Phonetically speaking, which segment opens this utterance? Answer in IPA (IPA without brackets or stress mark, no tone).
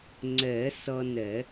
ŋ͡ǀ